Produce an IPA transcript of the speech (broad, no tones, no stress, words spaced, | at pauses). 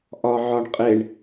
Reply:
ʔɒʕɒɳqʼeɳ